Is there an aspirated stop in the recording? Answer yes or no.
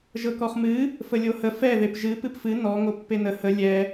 no